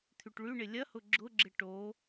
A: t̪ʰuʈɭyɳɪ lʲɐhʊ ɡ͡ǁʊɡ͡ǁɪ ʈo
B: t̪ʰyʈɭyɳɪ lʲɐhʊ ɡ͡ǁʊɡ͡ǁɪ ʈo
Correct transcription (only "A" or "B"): B